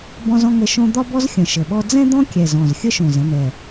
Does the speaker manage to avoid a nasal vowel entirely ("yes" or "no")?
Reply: no